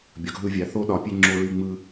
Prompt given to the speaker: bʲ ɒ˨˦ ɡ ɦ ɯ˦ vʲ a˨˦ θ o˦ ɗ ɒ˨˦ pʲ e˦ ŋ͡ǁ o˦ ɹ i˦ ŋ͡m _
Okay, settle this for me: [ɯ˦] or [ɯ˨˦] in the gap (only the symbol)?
ɯ˦